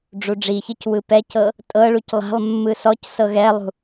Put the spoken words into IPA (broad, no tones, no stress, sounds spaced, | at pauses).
ɖ͡ʐ u ɖ͡ʐ i ç ɯ c w ɯ p ɛ c ɤ | tʼ ɤ ɭ u c lˠ a̤ lˠ mː ɯ s ɔ c s ɤ ɣ ɛ lˠ ṳ